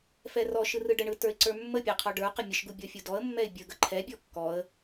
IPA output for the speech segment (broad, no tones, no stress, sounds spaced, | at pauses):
f ɛ r ɔ ʃ ɯ r ɯ ɖ ə ɳ ɯ t ə˞ ɪ̯ ǀ ə˞ mː ə pʲ ɛ qʰ ɔ ɖ ə˞ q ə mʲ ə ʃ ɡ u bʲ ɔ fʲ u d ɔ ə̯ mː ɛ ɪ̯ bʲ ə ɡ ə ǃʰ ɛ bʲ ɔ kː ɔ ə̯